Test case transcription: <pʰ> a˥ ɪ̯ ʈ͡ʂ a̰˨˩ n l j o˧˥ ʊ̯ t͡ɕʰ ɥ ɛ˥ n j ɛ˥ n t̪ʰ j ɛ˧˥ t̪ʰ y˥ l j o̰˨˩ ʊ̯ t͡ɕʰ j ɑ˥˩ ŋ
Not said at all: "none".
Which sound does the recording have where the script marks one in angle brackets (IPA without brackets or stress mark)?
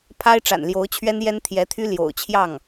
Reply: pʰ